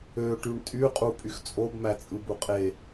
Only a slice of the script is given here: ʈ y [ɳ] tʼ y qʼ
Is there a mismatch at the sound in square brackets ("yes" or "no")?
no